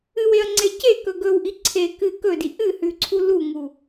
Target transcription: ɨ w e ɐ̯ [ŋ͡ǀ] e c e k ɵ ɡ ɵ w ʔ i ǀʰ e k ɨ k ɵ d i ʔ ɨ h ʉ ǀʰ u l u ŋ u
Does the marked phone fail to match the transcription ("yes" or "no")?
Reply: no